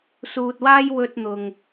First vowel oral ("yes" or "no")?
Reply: yes